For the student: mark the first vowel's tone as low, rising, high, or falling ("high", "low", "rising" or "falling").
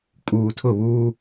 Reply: low